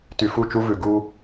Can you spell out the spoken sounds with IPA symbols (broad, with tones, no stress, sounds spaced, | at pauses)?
t y˨ f u˦˨ t͡ʃ u˦ v ʉ˨ ɡ u˦